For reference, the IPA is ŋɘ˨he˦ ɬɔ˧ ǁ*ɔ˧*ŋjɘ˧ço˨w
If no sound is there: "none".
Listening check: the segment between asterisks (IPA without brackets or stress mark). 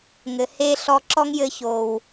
ɔ˦